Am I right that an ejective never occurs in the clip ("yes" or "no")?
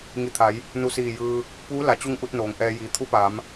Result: yes